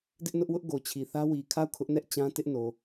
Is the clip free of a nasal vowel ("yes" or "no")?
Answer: no